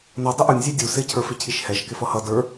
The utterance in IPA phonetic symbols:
n ʌ dˤ ɪ ʔ u nʲ zʲ ɛ dʲ u s ɪ cʰ ə˞ f ɪ cʰ i ʃ h ɛ ʃ k ɪ f ʌ h ʌ d ə˞

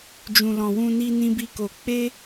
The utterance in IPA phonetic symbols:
d͡ʒ ũ˨ l ɔ̃˨ w ũ˧ n i˧ n ĩ˦ b i˦ k o˧ k͡p e˦

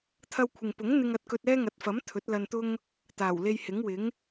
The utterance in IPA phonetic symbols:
t̪ʰ ɐ˧ w kʷʰ ɪ˨ ŋ p ʊ˨˥ ŋ n̪ ɪ˧ ŋ ɐ˧ t̚ k ɵ˧ t̚ ɛː˥ ŋ ɐ˨˥ t̚ f ɐ˨˥ m t̪ʰ ɵ˨˥ t̚ l ɐ˧ n t̪ ʊ˥ ŋ | t̪ aː˨˩ w l e˧ j h ɪ˨˥ ŋ w ɪ˨˥ ŋ

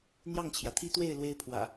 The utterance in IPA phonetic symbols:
n̪ j ɑ˥˨ ŋ t͡ɕʰ j ä˩ t̪ʰ i˦ t̪ w e˥˨ ɪ̯ l w e˦ ɪ̯ pʰ w ä̰˨˩

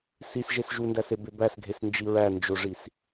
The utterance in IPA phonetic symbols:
s i s ʒ e s ʒ u n d æ s e b e b æ s ɡʱ e s n d͡ʒ i ɹ æ n d͡ʒ o ʐ i s

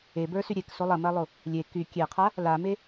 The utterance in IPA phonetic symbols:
e b ə˞ s y ɾʲ e k s o lˠ ɐ m ɐ lˠ o | lʲ e k y kʲ e qʰ a | l a m e

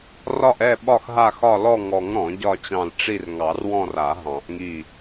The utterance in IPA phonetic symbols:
r ɒ˦˨ ʔ ɛ˦˨ ɓ ɒ˦˨ x ɦ a˦˨ x ɒ˦˨ l ɔ˦˨ ŋ ɔ˨˩˦ ŋ ɾ ɔ̃˨˩˦ ɟ ɒ˦˨ t͡ɕ ɑ̃˦˨ l ʈ͡ʂ i˦˨ r ŋ ɑ˨˩˦ r w ɔ̃˦˨ r a˨˩˦ ɦ ɑ̃˨˩˦ ʔ ŋ i˦˨

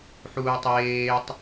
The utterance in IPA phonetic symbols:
ħ uː tˤ eː tˤ

